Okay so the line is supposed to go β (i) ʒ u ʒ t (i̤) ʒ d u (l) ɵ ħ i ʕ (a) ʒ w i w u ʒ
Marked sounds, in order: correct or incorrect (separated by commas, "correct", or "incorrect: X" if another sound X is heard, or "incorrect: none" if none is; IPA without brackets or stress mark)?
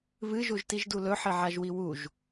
incorrect: ɨ, incorrect: i, correct, correct